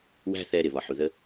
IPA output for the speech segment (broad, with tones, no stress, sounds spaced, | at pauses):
w æ̤˦ θ ɛ˧ ɾ ɪ˨ β ɒ˨ ħ u˨ ð ə˧